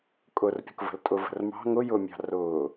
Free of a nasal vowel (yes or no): yes